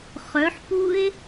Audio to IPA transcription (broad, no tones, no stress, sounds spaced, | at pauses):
χ œ ħ p u e̯